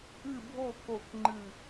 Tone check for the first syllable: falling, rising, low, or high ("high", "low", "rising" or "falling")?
falling